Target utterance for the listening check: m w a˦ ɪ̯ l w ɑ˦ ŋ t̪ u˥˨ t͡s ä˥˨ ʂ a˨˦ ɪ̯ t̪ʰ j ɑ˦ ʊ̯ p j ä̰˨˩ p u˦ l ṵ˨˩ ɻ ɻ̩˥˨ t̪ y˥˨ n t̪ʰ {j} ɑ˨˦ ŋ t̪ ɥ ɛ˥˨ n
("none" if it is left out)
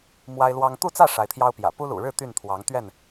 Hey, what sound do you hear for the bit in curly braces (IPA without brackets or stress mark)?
w